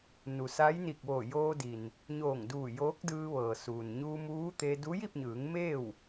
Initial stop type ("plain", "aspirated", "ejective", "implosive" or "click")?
plain